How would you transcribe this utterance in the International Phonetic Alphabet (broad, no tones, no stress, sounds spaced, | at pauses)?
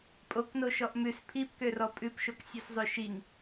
pʼ o k n o ʃ ɔ ʔ m ʉ s pʰ i p k ø r ɔ pʼ ʉ p ʃ o k sʲ ʉ s zˤ ø ʃ i ŋ